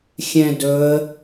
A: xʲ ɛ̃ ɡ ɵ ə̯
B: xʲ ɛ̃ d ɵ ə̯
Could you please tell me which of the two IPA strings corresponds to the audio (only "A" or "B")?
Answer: B